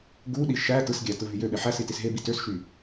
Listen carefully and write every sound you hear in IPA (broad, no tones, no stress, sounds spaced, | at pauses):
ɡ u ɗ i ʃ æ t ɯ s ɡʲ æ t ɯ v y j ø ɓ e ħ æ s i t i s ɦ e b i t ø s ʃ y